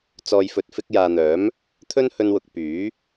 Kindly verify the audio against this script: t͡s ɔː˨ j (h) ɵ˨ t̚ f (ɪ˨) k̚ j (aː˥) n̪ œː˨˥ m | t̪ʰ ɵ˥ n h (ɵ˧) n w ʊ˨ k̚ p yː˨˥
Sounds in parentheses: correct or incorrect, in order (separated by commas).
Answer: incorrect, incorrect, incorrect, correct